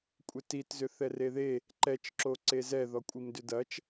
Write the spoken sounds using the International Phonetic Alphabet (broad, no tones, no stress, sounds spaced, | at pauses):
kʷʼ e t i t z ʏ θ ɛ r e ð e | ǃ ɛ t͡ʃ ǁ o ǀ e z ɛ ð ɔ kʷʼ i m d ʏ d ɐ t͡ʃ